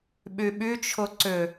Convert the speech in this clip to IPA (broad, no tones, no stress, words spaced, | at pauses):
ɓyɓyt͡ʃʰʊ ǀʏ